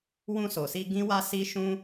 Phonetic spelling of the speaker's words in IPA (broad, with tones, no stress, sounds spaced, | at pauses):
w ũ˧ s o˨ s i˧ ɡ ĩ˦ w a˦ s i˦ ʃ ũ˦